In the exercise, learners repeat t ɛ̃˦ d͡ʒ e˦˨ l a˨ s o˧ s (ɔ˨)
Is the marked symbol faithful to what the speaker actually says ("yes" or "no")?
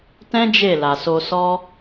no